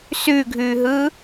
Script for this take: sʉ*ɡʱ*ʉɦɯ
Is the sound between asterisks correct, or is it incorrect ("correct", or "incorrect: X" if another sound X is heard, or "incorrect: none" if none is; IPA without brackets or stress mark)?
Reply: correct